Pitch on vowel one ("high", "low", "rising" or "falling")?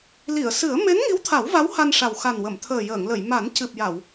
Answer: low